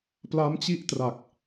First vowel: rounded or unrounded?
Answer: unrounded